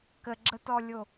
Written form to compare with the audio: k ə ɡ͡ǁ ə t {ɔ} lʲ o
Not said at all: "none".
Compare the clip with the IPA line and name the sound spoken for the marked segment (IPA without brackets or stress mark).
ɔ